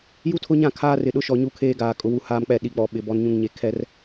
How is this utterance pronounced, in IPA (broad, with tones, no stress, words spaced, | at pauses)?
ju˦tʰʊ˦ɲã˦˨ kʰaː˦rɪ˨ɗʊ˦ʃɔ˨ ɲu˦kʰeː˦ɡaː˨ kʼʊ˨wu˨ haː˦mk͡pɛ˦˨ ɗi˨k͡pɔ˨ ɓɪ˨ bɔ˨nɲũ˨ŋɲe˨ kʰɛ˦r